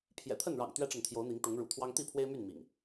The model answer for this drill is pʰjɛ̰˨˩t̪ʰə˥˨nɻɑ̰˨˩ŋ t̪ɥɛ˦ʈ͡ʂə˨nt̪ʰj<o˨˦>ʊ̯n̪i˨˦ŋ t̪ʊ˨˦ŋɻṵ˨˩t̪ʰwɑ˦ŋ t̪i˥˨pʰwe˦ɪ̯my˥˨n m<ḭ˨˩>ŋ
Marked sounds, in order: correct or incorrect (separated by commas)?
correct, correct